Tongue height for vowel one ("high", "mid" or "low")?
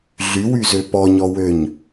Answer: high